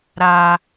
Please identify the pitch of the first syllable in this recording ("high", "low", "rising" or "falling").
high